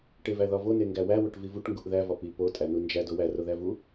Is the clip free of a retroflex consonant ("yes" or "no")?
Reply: no